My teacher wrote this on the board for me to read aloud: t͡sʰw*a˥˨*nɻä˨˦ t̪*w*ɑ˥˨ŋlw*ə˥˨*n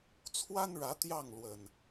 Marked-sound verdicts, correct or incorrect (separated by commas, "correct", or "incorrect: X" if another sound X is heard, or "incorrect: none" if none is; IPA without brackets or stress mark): incorrect: a˦, incorrect: j, incorrect: ə˨˩